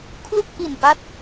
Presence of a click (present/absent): absent